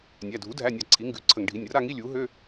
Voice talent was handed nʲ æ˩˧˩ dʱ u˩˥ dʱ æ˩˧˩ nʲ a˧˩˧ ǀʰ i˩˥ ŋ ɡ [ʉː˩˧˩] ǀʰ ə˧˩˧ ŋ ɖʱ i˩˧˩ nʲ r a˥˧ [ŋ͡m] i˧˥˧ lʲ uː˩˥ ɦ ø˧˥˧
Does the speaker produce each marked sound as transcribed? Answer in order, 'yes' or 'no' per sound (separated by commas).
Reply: no, no